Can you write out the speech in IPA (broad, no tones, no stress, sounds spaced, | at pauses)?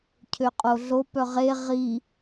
cʰ ø qʼ o ɮ o p œ ʁ e ʁ i